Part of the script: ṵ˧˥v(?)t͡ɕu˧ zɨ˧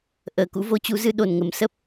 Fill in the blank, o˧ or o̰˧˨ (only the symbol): o˧